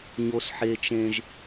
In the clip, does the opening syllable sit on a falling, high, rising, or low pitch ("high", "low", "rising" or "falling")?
high